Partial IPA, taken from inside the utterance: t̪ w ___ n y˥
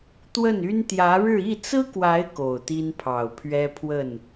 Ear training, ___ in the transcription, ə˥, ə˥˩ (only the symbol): ə˥˩